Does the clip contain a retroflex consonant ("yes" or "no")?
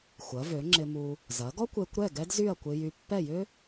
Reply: no